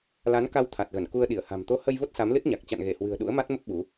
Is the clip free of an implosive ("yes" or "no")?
no